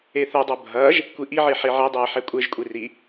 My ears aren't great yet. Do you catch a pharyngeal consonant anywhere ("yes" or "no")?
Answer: yes